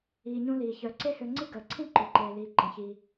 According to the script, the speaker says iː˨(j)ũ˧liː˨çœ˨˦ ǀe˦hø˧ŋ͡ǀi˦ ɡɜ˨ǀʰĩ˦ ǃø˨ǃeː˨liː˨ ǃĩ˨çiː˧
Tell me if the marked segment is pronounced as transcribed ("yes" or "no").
no